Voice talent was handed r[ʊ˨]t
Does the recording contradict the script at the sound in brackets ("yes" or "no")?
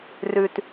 yes